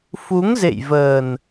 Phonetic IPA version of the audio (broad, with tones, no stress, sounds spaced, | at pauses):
f u˨˦ ŋ z ḛ˧˨ j v əː˨˩ n